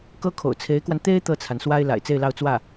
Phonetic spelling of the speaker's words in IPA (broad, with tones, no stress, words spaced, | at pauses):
kɤ˥kʰo̰˨˩ʊ̯t͡sʰe˧˥ɪ̯kwa˧n t̪e˥ɪ̯ t̪ɤ˥˩t͡sʰa˩nswa˥ɪ̯ la̰˨˩ɪ̯t͡se˥˧ɪ̯lɑ˥˧ʊ̯ t͡swä˥˩